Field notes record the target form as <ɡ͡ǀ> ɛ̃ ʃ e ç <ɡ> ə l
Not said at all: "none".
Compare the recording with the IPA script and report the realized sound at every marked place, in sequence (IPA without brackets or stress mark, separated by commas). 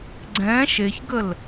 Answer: ɡ͡ǀ, ɡ